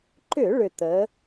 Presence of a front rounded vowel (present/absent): present